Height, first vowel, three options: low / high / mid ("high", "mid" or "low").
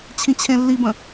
high